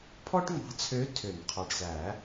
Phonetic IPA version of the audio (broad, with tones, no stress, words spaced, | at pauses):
pʰɔ˥ʈŋ͡mɑ̤˧˥t͡sʰø˧˥ tʰø˨˩˦nqʰɑ˨˩ɖsæ˨˩˦